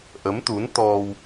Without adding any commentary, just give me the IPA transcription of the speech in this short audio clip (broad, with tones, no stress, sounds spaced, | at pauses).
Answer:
ʔ ə˨˦ m t̪ u˨˦ n t̪ ɔ˧ w